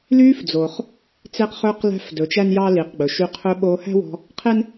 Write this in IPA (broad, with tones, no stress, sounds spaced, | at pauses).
l yː˧ f d͡z o˩ χ | t͡s e˧ q χ ɵː˧ q l æ̤˧ f d ɵ˩ t͡ʃ æ˥ n j ɑ˥ l i˩ q ɡ͡b ɵ˩ ʃ y˧ qʰ ɵ˧ ɓ oː˧ h æ̤˥ w ɔ̤˧ | qʰ e˥ n